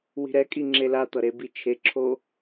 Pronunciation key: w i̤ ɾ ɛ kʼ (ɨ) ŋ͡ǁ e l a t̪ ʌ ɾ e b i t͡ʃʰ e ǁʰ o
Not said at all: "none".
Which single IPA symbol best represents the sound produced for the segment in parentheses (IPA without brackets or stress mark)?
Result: i